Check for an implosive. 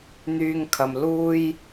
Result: absent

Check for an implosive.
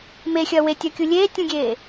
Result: absent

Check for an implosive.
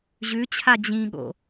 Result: present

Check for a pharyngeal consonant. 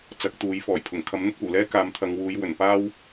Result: absent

